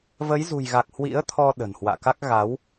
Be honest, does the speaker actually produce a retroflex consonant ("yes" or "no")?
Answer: no